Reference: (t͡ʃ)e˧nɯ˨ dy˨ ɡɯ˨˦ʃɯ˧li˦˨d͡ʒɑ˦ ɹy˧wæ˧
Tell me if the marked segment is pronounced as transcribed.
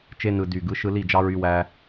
yes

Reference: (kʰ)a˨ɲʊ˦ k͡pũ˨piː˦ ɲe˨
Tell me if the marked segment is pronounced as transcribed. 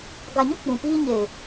no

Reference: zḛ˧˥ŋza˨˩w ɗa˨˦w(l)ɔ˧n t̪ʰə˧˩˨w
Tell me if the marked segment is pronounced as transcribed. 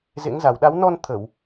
no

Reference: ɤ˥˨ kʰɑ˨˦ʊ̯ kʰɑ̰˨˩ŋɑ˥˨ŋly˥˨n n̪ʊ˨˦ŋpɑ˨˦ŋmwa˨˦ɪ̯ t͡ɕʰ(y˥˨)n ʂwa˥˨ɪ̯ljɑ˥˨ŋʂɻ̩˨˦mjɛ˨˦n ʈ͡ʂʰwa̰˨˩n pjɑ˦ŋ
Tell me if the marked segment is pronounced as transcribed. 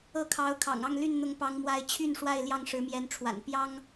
yes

